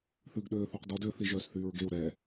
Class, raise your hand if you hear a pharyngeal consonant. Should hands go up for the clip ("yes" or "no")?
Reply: no